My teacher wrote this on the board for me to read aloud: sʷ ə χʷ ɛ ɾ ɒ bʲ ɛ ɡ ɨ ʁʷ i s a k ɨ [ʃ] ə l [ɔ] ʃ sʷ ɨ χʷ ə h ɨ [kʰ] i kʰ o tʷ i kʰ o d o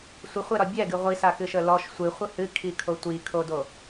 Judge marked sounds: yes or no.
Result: yes, yes, yes

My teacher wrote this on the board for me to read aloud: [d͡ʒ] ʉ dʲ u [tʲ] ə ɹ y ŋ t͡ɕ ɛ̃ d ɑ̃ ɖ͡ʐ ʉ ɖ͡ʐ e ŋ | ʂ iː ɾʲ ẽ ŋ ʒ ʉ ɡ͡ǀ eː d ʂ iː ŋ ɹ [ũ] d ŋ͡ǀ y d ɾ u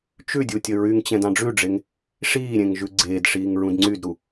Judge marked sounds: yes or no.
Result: no, yes, yes

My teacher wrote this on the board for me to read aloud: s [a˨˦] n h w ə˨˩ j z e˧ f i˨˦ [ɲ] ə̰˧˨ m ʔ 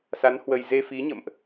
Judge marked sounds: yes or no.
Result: yes, yes

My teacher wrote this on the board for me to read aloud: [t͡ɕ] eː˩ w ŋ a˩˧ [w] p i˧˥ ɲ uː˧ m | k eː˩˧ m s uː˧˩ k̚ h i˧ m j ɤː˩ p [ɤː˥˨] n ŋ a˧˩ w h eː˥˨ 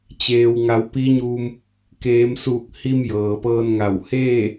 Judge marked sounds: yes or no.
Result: yes, yes, no

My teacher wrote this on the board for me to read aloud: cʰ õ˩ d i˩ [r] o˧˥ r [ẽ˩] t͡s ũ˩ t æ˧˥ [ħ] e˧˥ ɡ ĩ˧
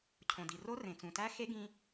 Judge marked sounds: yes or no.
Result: yes, yes, no

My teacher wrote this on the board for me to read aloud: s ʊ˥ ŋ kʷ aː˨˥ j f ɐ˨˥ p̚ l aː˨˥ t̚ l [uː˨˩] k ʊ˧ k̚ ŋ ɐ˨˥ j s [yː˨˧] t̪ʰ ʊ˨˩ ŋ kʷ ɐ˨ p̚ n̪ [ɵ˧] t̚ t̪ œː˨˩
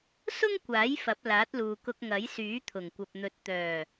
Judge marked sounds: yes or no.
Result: no, no, no

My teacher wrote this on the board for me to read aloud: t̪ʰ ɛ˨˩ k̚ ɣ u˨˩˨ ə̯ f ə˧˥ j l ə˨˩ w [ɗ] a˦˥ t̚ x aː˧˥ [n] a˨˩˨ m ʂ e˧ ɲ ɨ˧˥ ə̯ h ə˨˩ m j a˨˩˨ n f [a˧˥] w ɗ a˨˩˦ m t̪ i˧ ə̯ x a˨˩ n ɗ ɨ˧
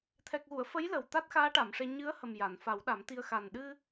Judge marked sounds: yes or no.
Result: no, no, no

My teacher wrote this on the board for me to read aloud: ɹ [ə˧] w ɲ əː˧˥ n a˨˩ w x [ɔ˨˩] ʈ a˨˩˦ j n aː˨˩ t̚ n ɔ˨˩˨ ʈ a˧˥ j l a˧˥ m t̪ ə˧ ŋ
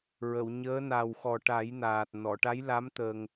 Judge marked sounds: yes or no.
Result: no, yes

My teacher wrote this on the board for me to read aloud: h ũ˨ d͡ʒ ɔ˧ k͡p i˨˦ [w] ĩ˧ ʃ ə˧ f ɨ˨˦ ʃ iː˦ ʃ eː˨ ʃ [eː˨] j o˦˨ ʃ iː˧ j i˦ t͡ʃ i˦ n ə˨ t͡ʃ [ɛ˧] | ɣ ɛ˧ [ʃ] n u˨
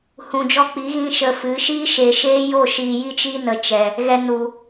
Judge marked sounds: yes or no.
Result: no, no, no, no

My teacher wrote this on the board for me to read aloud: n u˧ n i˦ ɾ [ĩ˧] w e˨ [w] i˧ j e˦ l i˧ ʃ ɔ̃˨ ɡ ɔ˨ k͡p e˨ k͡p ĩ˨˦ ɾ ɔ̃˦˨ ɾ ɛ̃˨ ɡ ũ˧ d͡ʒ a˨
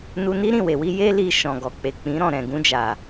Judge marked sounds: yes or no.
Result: no, yes

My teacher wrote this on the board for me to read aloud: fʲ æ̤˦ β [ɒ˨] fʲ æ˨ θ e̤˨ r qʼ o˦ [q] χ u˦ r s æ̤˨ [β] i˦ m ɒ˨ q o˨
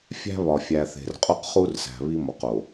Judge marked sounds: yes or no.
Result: yes, yes, yes

